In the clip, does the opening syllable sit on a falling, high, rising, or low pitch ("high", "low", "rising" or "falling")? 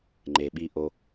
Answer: low